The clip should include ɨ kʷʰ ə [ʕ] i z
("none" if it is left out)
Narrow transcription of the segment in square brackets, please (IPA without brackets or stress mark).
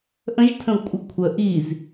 ʔ